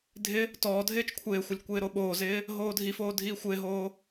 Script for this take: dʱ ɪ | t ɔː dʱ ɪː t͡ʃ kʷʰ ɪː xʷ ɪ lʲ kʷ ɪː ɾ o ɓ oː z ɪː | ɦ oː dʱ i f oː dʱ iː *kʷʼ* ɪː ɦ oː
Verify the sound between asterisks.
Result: incorrect: xʷ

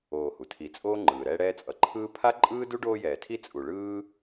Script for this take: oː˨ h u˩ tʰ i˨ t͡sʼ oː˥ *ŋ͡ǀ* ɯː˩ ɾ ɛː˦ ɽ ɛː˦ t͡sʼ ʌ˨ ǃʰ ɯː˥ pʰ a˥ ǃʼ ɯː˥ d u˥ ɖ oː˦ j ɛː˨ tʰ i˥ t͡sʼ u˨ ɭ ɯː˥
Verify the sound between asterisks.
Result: incorrect: ŋ͡ǃ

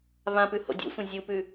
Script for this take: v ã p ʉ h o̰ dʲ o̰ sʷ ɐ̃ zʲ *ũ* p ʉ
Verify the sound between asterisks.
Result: incorrect: u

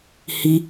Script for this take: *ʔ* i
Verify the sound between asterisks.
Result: incorrect: h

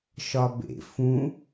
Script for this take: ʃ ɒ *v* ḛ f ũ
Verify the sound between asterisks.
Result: incorrect: b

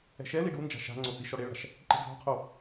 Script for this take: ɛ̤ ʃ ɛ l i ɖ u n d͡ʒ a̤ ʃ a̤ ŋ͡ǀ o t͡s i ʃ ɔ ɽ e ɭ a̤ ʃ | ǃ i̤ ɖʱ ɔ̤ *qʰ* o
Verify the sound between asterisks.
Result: correct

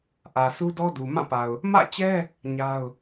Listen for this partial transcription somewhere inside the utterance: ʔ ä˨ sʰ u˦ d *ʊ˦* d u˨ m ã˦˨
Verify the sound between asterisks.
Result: incorrect: ɔ˦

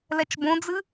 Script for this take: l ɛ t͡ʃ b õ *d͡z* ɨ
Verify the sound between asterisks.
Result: correct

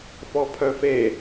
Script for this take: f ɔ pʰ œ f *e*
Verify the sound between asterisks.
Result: correct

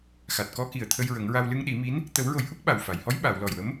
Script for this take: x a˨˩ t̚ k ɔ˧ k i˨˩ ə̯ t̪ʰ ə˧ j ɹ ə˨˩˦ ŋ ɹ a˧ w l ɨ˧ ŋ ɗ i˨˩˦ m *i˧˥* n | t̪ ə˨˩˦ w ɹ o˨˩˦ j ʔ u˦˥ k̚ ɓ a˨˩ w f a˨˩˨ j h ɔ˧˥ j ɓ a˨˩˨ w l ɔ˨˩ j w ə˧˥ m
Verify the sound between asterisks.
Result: correct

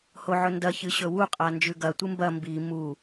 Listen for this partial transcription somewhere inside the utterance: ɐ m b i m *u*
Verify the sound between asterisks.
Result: correct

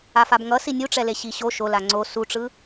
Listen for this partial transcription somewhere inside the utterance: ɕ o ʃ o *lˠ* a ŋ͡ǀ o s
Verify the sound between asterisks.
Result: incorrect: l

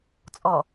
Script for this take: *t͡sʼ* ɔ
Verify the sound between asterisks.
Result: correct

